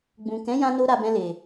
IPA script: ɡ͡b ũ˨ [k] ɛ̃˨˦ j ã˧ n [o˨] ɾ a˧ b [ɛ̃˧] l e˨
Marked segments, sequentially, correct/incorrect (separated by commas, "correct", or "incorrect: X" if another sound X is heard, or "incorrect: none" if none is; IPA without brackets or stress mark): correct, incorrect: o˧, correct